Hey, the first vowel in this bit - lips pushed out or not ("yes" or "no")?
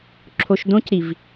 yes